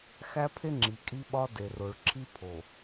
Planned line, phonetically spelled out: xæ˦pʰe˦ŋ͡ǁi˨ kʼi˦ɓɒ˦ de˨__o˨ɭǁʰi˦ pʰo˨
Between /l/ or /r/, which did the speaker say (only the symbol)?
r